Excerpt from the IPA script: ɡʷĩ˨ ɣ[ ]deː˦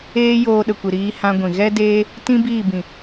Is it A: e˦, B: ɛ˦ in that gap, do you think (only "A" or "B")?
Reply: B